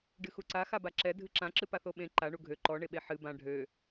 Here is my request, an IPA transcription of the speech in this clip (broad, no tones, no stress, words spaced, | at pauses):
ɖɨxuǀa xabaǁɛ dʱɨǁã ǁɨpaθoɓẽ ǃa ɳuɡʱø ǃɔ ɳeɓeħɨ bã ɖʱø